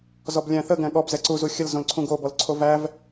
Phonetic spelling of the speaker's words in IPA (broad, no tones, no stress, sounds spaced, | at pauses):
z ɔ b lʲ æ̃ θ ə ɡ æ̃ ɠ ɔ b z ɛ ǀ u z u xʲ ə l z õ l ǀʰ ũ ɡ o b ɔ l ǀʰ o v æ v